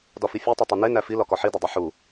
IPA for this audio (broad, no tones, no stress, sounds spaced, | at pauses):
d ɒ f i fʲ u tˤ e tˤ i n e n æ f i l ɒ k ɒ ħ i d ɒ dˤ e ħ u